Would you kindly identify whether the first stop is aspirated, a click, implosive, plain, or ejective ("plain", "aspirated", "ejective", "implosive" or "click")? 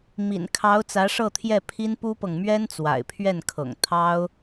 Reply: aspirated